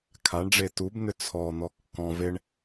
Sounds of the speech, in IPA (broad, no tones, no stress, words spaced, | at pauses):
kʰaɳɖ͡ʐe tubn̪ʏ t͡sʰɔn̪ɔ kːɔ̃ veɳ